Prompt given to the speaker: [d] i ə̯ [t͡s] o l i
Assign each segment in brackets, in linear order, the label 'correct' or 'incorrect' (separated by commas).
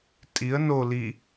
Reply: incorrect, incorrect